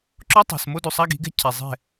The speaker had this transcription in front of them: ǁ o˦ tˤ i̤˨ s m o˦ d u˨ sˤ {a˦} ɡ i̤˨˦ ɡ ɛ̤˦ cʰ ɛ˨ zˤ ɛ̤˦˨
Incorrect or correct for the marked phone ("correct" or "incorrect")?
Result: correct